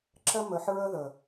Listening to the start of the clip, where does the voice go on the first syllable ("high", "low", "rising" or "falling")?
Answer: high